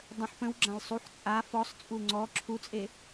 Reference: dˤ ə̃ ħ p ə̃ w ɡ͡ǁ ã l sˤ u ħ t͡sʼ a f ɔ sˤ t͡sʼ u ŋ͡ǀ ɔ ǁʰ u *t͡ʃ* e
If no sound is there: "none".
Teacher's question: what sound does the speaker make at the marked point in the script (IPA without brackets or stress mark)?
t͡sʼ